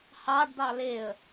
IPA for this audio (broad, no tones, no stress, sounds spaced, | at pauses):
h ɑ ɖ d ɑ l e ə̯